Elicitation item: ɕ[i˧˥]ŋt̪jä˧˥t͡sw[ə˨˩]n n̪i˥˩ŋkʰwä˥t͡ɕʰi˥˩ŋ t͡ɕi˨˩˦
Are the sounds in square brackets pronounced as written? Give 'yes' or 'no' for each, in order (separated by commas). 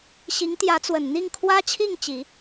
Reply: yes, yes